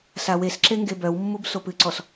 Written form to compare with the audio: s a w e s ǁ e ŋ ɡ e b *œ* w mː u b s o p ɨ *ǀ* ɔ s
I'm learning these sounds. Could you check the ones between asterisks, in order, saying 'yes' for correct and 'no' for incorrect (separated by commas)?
yes, yes